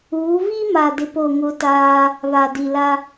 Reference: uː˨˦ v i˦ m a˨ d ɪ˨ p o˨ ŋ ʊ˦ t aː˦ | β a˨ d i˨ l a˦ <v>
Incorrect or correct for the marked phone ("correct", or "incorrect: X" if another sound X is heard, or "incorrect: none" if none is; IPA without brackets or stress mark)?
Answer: incorrect: none